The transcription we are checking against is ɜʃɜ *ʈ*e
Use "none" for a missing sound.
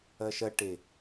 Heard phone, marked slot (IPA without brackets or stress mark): ʈ